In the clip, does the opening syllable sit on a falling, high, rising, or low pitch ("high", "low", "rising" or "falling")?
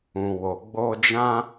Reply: low